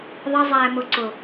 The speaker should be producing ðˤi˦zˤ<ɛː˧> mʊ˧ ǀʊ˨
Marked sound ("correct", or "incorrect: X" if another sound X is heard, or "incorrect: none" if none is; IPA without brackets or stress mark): correct